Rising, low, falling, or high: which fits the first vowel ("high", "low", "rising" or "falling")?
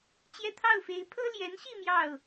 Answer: falling